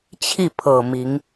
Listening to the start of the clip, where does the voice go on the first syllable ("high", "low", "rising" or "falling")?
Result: falling